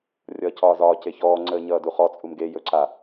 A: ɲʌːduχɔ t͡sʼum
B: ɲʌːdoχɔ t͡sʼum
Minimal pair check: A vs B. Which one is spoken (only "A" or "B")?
A